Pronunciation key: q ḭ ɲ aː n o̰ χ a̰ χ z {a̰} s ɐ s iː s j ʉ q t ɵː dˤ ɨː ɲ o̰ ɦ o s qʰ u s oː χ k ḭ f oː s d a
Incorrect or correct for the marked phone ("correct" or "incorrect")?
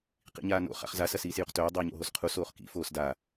incorrect